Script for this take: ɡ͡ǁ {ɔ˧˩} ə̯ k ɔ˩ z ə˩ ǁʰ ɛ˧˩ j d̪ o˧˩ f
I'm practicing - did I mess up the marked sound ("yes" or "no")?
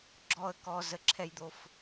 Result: no